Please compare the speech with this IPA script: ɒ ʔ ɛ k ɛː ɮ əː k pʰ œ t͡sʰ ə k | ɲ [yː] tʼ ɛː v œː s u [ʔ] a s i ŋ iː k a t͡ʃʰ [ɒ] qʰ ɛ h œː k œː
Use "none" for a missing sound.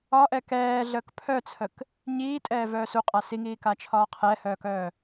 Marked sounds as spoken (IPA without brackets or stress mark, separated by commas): iː, qʼ, ɒː